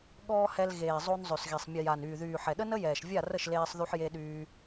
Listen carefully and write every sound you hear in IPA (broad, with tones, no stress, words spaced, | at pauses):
ɠɔː˧ hɛ˧lɣeː˨zˤo˧n zˤø˨sɣe˨sˤ mʲə˨ ja˨n yː˨ðyː˨ħɛ˨ɗə˦ nə˦jɛː˨ʃ vʲa˦˨rə˦˨ʃleː˧sˤðy˧ħ je˧ɗyː˧